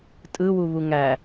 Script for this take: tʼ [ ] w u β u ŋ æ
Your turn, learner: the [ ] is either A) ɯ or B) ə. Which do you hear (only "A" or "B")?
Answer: A